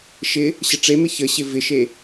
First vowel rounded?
no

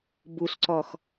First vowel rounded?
yes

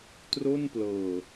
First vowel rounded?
yes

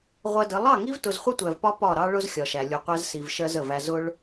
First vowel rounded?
no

